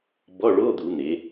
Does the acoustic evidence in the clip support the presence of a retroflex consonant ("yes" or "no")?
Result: yes